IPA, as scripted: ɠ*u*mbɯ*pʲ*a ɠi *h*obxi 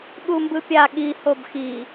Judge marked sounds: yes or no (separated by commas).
yes, yes, yes